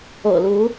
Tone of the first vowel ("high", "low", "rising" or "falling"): low